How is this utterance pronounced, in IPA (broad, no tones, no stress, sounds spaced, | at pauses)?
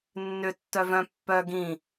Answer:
nː ʏ tː œ v œ̃ pː œ ɡ ĩ